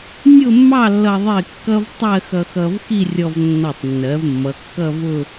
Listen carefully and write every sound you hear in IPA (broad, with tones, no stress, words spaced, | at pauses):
nʲʊ˥˧mːɑ˥˧lːʌ˧ ðˤɪ˥˧kːʌ˥v tˤɜ˥˧xʌ˧xʌ˧vxi˥˧ rʲɔ˧vnːɔ˧˩tˤnːɜ˩˧v mːʌ˩˧kːʌ˥˧vʊ˥˧